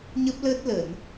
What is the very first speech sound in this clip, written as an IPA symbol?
ɲ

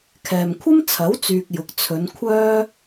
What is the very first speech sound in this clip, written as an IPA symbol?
kʰ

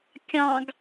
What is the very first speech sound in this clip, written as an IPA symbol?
kʲ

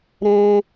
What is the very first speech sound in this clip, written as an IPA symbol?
ɾ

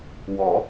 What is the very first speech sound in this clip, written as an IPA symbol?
w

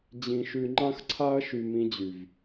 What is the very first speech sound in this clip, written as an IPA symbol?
d͡ʑ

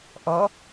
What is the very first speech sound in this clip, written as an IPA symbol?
ʔ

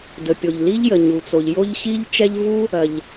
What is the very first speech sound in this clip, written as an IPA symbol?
d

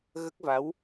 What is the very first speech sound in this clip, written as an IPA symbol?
ɣ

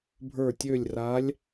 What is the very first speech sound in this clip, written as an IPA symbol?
bʱ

